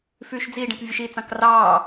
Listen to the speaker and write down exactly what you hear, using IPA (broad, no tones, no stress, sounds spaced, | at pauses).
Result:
f yː ʃ d͡z i ɖ ẽ k vʲ ɯ ʃ i t͡s ɑ̃ k r ɑː